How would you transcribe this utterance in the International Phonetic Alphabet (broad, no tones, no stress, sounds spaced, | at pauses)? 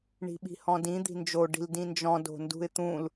ɳ i̤ ɓ i̤ h ɔ̃ d ĩ d̪ i̤ n d͡ʒ o ɖ i̤ l d ĩ n d͡ʒ ɔ̃ d o̤ n d ṳ ɪ̯ t̪ ũ l